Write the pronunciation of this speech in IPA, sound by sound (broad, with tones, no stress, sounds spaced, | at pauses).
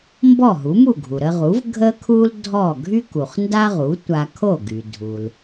m b ɔ˥˩ ɦ u˩˥ m u˥˩ ɡʱ u˩ ɾ ə˧ ʁ u˩˥ v ɡʱ ə˥ kʰ u˥ l dʱ ɔ˥˩ ɡʱ y˥ k u˩ χ n d a˥ ʁ u˩˥ tʷ a˧ kʰ o˥˩ ɡ y˩ dʱ u˩ l